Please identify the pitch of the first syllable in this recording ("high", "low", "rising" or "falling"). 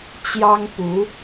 high